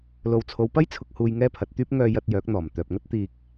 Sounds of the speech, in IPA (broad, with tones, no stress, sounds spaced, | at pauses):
l o˨ w t͡sʰ o˨˧ w p ɐ˥ j t͡sʰ ʊ˧ k̚ h uː˧ j ŋ ɛː˥ pʰ ɐ˨˥ t̚ t̪ yː˥ p̚ ŋ œː˧ j ɐ˧ t̚ j œː˨˥ k̚ n̪ ɔː˨˩ m t̪ œː˨ p̚ ŋ ɐ˥ t̚ t̪ iː˧ k̚